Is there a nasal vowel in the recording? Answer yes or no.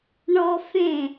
yes